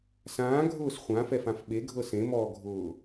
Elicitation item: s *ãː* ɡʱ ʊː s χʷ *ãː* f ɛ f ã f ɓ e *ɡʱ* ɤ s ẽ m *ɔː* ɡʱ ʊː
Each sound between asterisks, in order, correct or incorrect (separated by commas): correct, incorrect, correct, correct